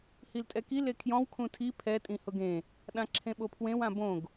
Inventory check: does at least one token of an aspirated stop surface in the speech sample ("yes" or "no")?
yes